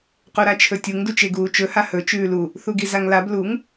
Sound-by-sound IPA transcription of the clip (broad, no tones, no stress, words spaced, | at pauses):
quɾat͡ʃʰɵtʲuŋ dut͡ʃeɡuːt͡ʃɵ hahɵ t͡ʃʉːlu | θuɡizaŋlab luŋ